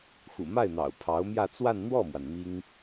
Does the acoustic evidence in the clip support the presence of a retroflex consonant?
no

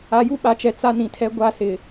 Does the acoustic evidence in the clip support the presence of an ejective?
no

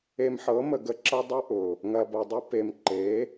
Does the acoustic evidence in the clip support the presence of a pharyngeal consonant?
yes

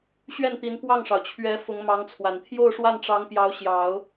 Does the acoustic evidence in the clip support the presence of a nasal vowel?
no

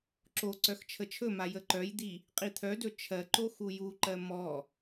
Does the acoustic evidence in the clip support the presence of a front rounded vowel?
yes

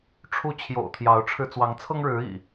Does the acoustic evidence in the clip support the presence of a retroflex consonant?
yes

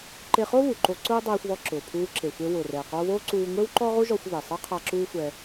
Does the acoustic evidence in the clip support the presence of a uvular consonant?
yes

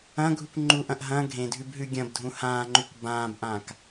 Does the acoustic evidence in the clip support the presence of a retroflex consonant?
no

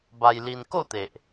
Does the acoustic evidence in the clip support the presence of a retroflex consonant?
no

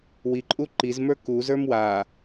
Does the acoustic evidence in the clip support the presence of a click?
yes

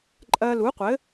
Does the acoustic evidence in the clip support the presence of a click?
yes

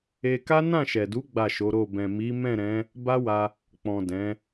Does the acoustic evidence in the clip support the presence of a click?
no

